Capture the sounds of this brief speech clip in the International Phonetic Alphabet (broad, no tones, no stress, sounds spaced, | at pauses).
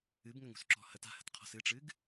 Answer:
ɨ b ŋ ə ŋ ṳ s ǁ ɔ̤ h ə t a̤ h ə̤ t qʰ ɔ̤ s ɨ ʈ͡ʂ ɨ ɡ